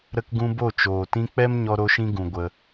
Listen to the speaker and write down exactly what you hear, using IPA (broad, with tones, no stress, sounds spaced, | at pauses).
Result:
ɾ ə˧ k ɡ ũ˧ b o˦˨ t͡ʃ oː˨ t ĩ˧ k͡p ɛ˦ m ɲ ɔ˧ ɾ o˧ ʃ ĩ˧ ɡ ũ˨ ɡʷ ə˧